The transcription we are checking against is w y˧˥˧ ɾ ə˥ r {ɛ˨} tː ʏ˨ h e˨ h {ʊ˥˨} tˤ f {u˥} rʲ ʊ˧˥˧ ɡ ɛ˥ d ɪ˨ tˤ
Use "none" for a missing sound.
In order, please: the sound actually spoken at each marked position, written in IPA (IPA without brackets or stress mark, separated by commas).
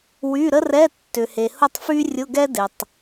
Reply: ɛ˧˥˧, ʊ˥˨, y˥